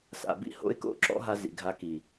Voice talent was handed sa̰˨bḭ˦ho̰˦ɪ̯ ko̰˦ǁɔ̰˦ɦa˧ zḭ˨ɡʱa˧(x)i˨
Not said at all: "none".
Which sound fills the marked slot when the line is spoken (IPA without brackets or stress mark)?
k